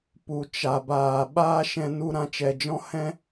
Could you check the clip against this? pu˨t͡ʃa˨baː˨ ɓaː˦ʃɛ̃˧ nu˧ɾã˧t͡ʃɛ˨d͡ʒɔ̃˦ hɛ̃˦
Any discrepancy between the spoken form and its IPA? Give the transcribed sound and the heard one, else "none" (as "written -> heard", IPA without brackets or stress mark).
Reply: none